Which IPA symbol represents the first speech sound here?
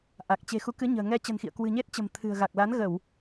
ʔ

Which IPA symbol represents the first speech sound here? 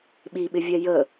ɓ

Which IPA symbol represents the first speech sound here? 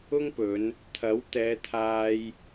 ʊ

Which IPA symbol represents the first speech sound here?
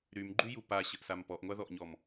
ɾ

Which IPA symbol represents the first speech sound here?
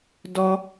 d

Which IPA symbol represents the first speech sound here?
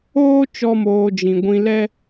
oː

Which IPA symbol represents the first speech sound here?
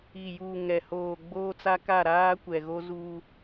i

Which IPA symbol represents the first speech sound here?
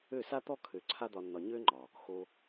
ø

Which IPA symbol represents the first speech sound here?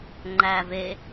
ŋ͡ǃ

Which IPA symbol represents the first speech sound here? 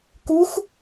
k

